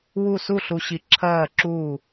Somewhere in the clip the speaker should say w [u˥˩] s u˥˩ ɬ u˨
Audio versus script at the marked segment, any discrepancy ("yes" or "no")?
no